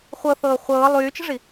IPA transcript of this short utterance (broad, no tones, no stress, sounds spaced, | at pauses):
χʷ ɤ θ ɤː χʷ ɤː lˠ yː t͡ʃ ə̤ ʐ i